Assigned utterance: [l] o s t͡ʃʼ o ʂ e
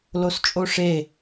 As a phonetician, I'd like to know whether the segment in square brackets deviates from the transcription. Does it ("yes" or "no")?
no